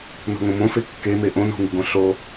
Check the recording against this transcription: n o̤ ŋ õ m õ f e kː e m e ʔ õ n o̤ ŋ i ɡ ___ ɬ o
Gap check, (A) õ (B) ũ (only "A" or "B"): A